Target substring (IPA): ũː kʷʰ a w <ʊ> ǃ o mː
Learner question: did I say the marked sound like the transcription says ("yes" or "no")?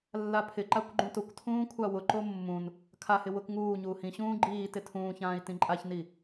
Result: yes